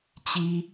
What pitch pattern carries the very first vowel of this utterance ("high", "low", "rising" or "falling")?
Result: high